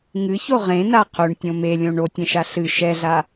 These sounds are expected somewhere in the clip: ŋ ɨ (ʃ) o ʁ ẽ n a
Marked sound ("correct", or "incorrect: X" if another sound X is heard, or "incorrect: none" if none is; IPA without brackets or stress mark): incorrect: ç